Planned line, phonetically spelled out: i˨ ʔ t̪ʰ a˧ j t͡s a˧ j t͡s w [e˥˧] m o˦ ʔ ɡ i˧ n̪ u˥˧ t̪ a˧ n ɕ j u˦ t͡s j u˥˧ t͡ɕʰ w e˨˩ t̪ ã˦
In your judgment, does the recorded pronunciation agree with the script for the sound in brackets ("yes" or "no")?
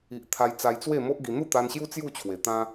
yes